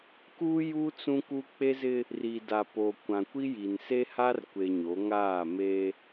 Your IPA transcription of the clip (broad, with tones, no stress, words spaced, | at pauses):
kuː˦ju˦ t͡sũ˦ku˦ k͡pe˦zɪ˦ | ri˨da˨po˨ kʷã˨kʷi˦ji˨n se˦ha˦rkʷe˨ ɲo˨˦ ŋaː˦˨me˦